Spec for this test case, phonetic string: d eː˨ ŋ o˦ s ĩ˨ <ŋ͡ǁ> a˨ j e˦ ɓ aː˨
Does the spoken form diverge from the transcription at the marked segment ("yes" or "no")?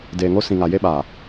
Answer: yes